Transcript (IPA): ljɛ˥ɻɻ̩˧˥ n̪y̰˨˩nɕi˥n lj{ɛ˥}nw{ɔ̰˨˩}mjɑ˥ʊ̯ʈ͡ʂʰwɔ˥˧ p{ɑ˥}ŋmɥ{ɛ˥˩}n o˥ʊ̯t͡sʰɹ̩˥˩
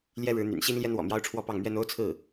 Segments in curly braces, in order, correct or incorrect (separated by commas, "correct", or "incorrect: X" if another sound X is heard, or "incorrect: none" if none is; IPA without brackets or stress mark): correct, correct, incorrect: ɑ˥˩, incorrect: ɛ˥